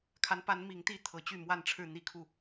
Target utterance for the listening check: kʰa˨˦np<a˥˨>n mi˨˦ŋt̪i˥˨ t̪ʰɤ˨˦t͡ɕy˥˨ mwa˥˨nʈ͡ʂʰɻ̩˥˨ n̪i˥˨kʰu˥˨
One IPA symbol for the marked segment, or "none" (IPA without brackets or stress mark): a˨˦